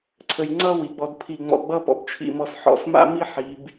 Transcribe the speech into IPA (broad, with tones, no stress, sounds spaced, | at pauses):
ǀʰ ə˧ j ŋ͡ǀ ʌː˥ w i˩˧ ɡ͡b ɔ˧ d pʰ i˧˩ ŋ͡m ɔ̰˧˩ ɡ͡b ʌ˥˧ p ɔ̰˧ b t͡ʃʰ ḭ˧˩ m ɔ˧˩ s ħ ɔ̰˧ s m a̰˥ m i˥ ħ i˩˧ b